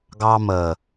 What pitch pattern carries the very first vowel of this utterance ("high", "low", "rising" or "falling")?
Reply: high